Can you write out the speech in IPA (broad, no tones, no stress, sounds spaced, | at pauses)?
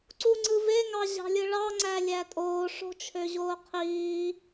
ǀ u ŋ͡ǀ ɯ v e ŋ ɑ ʑ ɑ̤ lʲ ɯ ɭ ɑ ŋ͡ǀ æ lʲ æ tʼ oː ʂ o̤ t͡ʃʰ ø ʑ oː qʰ iː